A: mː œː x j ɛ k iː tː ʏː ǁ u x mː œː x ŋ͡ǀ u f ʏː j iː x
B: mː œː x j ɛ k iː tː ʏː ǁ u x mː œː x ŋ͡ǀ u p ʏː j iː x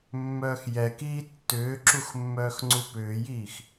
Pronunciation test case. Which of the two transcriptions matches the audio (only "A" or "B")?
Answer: B